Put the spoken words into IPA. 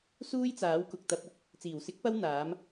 s uː˥ j t͡s aː˨˥ w k ʊ˨ k̚ t̪ ɐ˧ p̚ ʊ˥ k̚ | t͡s iː˨˩ w s ɪ˨˥ k̚ p ɐ˧ w n̪ aː˨˥ m

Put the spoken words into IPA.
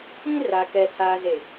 ĩ˦ r a˨ k ɛ˨ tʰ aː˨ z e˨

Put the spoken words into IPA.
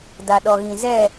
d a˨ ɗ ɔ˨ ɣ ĩ˨ z ɛ˦˨

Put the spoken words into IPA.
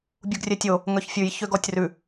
bʲ u ɡ rʲ ɛ tʲ o | ŋ œ ç fʲ ʉ j ç ø ɡ ɔ tʲ r ʉ

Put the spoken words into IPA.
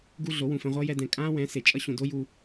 ɡ u˦ ɮ o˨˦ w ũ˨ f ɛ̃˧ ʁʷ ʌː˦ j ɛ˦ d ɛ̃˧ kʼ ãː˦ w ɛ̃˨˦ s e˨ t͡ʃʼ ʌ˦ ɕ ũ˨ d o˦ j u˧

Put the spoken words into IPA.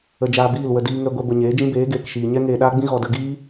ə˧ d͡ʒ aː˧ b iː˦˨ l w ə˧ d iː˧ ŋ ɛ˧ ɡʷ ɛ˧ b ə˨ ɲ eː˨˦ d͡ʒ ĩ˦ b eː˨˦ ɡ eː˨ k ʃ iː˨ ɲ ɛ˦ ŋ eː˧ ɗ aː˦ ɡ͡b ĩ˦ ɣ ɔ˨ d ə˧ ɡ iː˦

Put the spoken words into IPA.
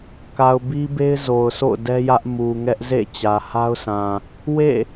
k a˨ ʊ̯ b i˦ b e˦ ɪ̯ z o˨ ʊ̯ sʰ o̰˦˨ ʊ̯ d ɛ˦ j ä˦ ʔ m u˨ ŋ ɛ˦ ʔ z ḛ˦˨ t͡ɕ ä˨ h a˦ ʊ̯ s ã˨ | w ḛ˦˨

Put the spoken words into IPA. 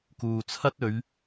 k uː˨ t͡sʰ ɐ˥ t̚ ɵ˨˧ ɥ

